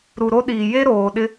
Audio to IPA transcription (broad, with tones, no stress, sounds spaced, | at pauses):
ɾ u˨ ɾ o˦ ɗ iː˨ j e˦ ɾ oː˨ ɗ ɪ˦